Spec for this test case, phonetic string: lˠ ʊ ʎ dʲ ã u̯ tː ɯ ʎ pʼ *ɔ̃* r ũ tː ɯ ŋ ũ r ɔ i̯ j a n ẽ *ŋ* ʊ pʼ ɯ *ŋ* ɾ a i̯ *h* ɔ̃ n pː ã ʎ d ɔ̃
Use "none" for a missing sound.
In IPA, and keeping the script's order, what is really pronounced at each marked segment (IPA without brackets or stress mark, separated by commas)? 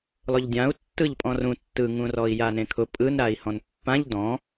ɔ̃, kʰ, n, h